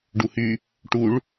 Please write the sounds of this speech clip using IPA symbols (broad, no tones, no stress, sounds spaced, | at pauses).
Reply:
ɖ u h y | ʈ u ɭ